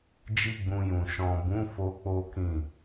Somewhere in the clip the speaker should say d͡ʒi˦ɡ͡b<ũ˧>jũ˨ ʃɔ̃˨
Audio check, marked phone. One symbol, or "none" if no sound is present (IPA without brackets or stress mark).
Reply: ũ˧